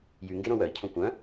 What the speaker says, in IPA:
j y ŋ ɡ e ɾ õ w œ i̯ cʰ õ kʷ œ̃

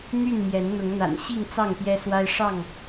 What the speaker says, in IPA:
n̪ y˥˨ n m j ɛ˨˦ n n̪ ʊ˨˦ ŋ n̪ a̰˨˩ n ɕ i˥˨ ŋ t͡s ɑ˥˨ ŋ p j ɛ˦ s w a˦ ɪ̯ ʂ ɑ˥˨ ŋ

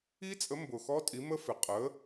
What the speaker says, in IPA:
i˦˥ t͡sʼ ə˨˥ m b ʊ˨˩ x ɔ˦˥ tʼ i˨˥ m ə˦˥ f ɪ˨˩ qʼ ə˨˥

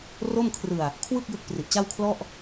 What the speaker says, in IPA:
r o˥˩ m kʰ r ɯ˧ a̯ | kʰ w ɯ˥˩ k̚ j ɯ˦˥ k̚ p r i˨˩ ʔ t͡ɕ a˥˩ w kʰ l ɔ˥˩ ʔ

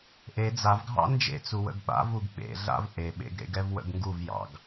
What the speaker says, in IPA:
ʔ e d͡z a v ɡʱ ɑ̰ n d͡ʒ ḛ t͡s u w ə̰ ɡ ɓ a̰ v u ɡ ɓ ḛ ɮ a̰ v ʔ e ɓ ḛ ɡ ɾ ḛ ɡ ɛ v w ə̰ ɡ ŋ ɡ u v j ɑ̰ ɡ

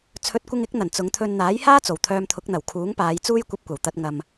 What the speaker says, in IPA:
t͡sʰ ɵ˨˥ t̚ kʷ ɪ˧ ŋ ɪ˨˥ k̚ n̪ ɐ˨˩ n t͡s ʊ˨˧ ŋ t̪ʰ ɵ˧ n n̪ aː˨˥ j h aː˥ t͡s o˨˩ w t̪ʰ œː˧ m t̪ʰ ʊ˨˥ k̚ n̪ ɐ˨˩ w kʰ uː˨˥ ŋ p aː˨˧ j t͡s uː˥ j kʷ ɐ˧ p̚ kʷ ɐ˨˩ w t̪ ɐ˧ t̚ ŋ ɐ˧ m

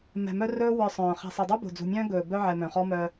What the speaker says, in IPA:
m ɛ̤˨ m œ˦ r ɵː˦ w ə˞˨ sˤ œ̃ː˨ χ ɛ̤˨ sˤ ɛ˨ dˤ ə˞˦ b o̤˨ d͡z ṳ˨ mʲ œ̃ː˦ ɡ ɵː˨ b œ˦ ʕ ɛ˨ m œ̃˨ χ ɔ˦ m œ˦

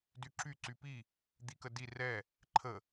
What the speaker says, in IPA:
d y ǁ y ǀ y p i | d̪ i k ə d i r ɛ | ǃʰ ə

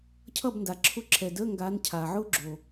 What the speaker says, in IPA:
cʰ ʌ˥˨ b n d a˩ ǁʰ ʊ˦˥ ǁʰ ɛ˩ d əː˧˥˧ ŋ ɡ aː˨˦ n cʰ aː˩ ʕ ʊː˦˥ ɡ͡ǁ o˩

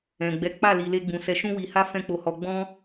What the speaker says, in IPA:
ɛ̃˨ ɡ͡b ɛ˨˦ k͡p a˦˨ l i˧ l e˦ ɡ͡b ũ˧ s ɛ˧ ʃ ũ˦ w i˧ h a˦ f ɛ̃˦ k͡p o˧ h ɔ˧ ɡ͡b ɔ̃˧

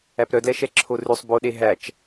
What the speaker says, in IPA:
æ p ɾ œ d l ɛ ʃ ɛ ǁʰ o r ʉ sˤ b o ɗ e ɦ æ t͡ʃ

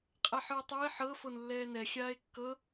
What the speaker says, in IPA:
qʼ ɛ ħ ɯ e̯ tˤ o e̯ ħ ɤ f o n lː ɛː n ɛ xʲ aː e̯ kː ɤ

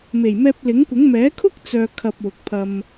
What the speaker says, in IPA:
m e˨˩ j m ɛː˧ p̚ l ɪ˨˥ ŋ kʷ ɪ˨˥ ŋ m ɛː˨˥ kʰ ʊ˥ k̚ t͡s œː˨ kʰ ɐ˧ p̚ w ʊ˨ k̚ pʰ ɐ˧ m

